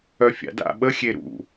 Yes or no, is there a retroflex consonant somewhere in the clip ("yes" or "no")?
no